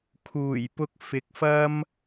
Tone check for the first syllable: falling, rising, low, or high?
low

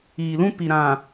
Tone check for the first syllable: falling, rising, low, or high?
low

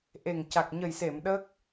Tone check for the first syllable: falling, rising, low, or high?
low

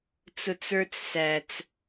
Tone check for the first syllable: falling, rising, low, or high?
low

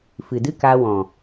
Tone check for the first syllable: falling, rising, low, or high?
low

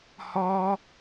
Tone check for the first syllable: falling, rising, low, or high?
high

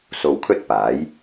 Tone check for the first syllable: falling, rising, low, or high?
low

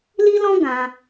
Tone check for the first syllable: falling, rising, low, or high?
high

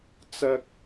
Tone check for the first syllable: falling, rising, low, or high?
high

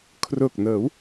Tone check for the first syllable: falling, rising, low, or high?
low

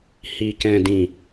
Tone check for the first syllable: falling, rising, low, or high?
low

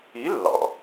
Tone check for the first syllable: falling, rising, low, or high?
rising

